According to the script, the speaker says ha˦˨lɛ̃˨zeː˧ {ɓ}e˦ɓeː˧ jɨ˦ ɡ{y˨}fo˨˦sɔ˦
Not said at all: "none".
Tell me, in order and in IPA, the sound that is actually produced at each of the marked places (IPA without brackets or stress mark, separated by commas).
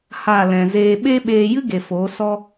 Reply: ɓ, e˨